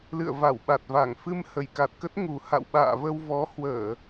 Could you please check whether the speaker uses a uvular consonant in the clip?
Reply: no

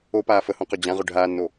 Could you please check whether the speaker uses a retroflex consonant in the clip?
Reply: yes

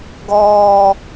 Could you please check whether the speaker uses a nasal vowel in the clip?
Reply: no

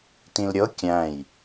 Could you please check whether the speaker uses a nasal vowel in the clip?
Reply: yes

